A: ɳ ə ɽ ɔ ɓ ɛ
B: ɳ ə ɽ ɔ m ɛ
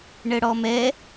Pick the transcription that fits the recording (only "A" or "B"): B